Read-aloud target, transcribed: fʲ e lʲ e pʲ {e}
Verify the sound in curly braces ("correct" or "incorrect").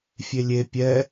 incorrect